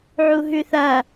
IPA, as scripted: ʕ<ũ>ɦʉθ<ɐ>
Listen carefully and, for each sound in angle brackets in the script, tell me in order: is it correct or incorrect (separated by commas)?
incorrect, correct